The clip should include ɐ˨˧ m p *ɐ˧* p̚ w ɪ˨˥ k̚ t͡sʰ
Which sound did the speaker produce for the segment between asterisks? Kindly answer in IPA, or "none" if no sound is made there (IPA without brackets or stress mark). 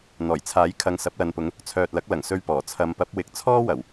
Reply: ɐ˨˥